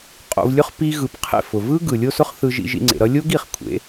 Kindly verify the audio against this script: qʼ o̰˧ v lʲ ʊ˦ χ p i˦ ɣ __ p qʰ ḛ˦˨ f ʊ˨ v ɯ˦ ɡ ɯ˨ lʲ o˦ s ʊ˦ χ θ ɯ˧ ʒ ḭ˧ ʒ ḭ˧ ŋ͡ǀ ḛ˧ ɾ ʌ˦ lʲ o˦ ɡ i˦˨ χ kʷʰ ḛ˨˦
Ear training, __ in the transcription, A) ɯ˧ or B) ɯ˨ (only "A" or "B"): A